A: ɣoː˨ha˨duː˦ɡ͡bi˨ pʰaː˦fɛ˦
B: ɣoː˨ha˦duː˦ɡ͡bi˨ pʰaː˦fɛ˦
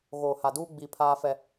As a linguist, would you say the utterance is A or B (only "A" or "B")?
A